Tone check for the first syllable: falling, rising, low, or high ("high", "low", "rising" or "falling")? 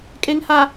low